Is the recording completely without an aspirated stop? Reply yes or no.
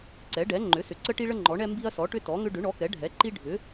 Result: yes